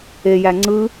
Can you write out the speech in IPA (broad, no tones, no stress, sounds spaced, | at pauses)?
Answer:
e j æ ŋ͡ǀ ɯ